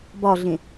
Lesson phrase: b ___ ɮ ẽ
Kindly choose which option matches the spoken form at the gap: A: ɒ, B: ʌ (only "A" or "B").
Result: A